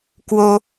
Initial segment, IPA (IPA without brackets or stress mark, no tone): k